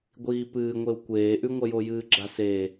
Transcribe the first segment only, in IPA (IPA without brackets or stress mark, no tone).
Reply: ɡʷ